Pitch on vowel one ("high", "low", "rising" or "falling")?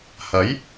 rising